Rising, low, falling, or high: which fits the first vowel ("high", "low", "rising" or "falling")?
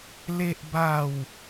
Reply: high